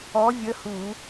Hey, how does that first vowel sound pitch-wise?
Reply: rising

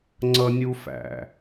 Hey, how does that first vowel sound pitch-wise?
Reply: high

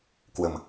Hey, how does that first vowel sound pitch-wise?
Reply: low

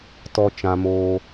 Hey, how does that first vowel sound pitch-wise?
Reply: low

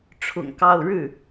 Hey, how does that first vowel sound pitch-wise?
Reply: low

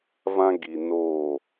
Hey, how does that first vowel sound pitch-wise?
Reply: high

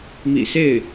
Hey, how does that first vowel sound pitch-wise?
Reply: low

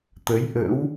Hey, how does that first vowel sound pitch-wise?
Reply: rising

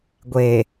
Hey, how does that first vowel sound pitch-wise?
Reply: low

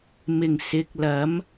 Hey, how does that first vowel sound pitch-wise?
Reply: low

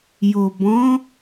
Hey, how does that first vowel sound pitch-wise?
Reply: low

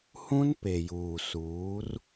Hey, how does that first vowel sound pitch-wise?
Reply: high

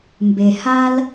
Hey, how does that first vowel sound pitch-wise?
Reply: low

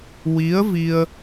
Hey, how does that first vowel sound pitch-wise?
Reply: rising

